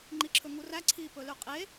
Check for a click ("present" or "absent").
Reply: present